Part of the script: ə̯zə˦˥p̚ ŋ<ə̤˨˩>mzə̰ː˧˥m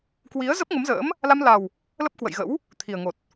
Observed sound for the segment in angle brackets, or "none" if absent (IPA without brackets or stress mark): ə˨˦